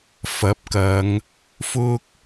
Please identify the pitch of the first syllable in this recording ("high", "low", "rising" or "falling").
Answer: rising